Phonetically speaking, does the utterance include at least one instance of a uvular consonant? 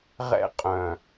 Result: yes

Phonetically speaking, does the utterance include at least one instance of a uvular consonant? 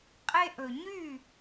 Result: yes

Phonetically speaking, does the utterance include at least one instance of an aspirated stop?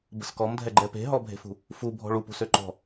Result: no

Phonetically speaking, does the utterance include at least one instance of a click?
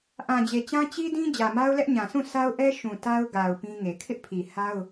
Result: no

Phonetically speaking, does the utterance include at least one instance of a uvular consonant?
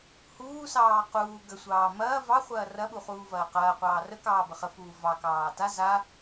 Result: yes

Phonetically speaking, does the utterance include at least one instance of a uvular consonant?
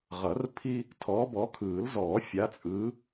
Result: yes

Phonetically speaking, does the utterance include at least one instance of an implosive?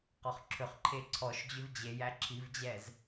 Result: no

